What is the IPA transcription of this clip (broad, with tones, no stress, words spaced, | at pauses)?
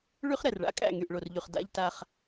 ɭy˦χ ɾɛ˨rɭa̰˦ kʼæ̰˦˨ŋy˨ʔɭo˨rʎy˨χ da̰˦ʎ ta˦χ